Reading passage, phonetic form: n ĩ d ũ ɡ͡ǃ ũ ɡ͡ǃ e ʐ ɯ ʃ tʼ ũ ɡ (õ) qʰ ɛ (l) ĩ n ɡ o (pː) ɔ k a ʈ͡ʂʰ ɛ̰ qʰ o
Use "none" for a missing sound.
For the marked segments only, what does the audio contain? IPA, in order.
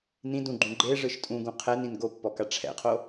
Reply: ũ, n, pː

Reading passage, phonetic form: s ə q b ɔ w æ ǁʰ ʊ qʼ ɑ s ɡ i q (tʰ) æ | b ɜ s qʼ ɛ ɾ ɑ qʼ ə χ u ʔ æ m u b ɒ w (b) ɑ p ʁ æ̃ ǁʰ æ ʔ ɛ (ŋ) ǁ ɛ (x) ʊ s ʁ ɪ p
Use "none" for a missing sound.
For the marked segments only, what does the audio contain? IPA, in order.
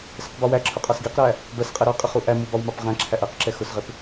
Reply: ɾ, m, q, x

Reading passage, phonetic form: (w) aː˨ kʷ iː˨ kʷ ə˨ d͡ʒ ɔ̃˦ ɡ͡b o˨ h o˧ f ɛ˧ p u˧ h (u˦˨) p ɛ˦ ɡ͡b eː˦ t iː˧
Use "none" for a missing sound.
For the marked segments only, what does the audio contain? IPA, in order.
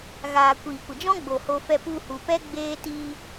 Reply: ɣ, u˨

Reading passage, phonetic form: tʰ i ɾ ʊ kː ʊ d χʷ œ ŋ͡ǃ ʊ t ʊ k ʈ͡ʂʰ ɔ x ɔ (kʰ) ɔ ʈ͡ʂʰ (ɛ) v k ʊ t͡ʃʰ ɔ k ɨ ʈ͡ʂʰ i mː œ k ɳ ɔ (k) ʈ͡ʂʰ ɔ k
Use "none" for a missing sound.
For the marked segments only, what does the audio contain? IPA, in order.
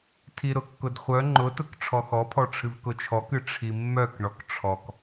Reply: pʰ, ɨ, k

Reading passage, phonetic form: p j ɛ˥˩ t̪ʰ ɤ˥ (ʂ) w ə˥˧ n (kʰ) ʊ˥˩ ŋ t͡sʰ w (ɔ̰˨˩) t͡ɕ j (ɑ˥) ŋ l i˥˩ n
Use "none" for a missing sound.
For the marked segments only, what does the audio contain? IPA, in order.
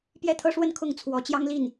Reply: ʂ, kʰ, ɔ˧˥, ɑ˥

